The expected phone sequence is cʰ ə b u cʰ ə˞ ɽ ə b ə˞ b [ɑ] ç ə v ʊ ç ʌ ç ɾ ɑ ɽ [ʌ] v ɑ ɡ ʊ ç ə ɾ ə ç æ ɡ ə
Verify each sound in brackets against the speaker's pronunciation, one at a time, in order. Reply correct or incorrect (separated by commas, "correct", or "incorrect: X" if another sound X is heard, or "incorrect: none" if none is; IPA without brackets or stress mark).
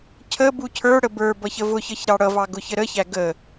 incorrect: ʌ, correct